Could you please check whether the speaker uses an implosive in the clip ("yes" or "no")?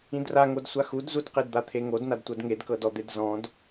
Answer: no